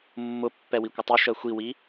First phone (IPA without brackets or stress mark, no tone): mː